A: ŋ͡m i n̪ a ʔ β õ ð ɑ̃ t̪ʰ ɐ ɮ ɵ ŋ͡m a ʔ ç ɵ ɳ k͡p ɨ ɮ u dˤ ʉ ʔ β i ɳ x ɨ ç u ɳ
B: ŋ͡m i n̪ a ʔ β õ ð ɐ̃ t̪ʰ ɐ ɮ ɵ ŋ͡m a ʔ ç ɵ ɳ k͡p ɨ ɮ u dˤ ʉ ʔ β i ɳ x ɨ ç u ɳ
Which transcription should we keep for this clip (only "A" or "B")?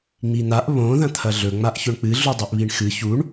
B